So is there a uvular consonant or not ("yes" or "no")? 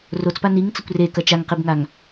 yes